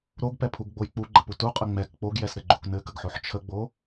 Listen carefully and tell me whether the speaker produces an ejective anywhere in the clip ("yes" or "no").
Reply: yes